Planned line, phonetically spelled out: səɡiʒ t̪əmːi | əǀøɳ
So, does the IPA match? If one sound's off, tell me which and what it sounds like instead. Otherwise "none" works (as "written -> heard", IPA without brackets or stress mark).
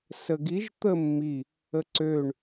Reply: none